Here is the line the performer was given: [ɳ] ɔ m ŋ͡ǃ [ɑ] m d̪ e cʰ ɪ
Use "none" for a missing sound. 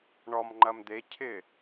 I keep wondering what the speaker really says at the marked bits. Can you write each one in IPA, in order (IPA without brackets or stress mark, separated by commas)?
ɳ, ɐ